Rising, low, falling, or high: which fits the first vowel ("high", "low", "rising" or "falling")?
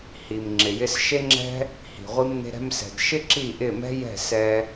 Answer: low